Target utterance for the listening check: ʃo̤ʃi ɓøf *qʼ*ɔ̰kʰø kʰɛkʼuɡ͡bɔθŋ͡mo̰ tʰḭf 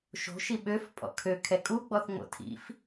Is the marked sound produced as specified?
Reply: no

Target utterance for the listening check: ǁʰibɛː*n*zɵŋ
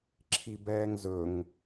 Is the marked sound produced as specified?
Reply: no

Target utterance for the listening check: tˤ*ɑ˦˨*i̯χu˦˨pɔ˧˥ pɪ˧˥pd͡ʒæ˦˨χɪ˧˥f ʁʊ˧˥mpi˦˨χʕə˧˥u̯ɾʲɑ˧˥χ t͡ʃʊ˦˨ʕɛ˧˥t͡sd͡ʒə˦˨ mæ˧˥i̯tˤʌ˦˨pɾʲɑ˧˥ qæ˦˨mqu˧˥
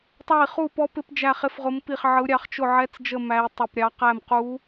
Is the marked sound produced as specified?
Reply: yes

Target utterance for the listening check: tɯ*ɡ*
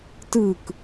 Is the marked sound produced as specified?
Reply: no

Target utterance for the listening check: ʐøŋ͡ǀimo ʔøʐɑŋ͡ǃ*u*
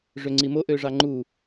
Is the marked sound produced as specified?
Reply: yes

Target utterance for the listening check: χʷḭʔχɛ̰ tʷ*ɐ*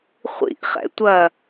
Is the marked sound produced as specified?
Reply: yes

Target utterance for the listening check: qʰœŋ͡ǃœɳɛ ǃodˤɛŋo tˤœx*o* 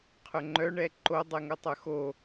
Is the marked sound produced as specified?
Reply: yes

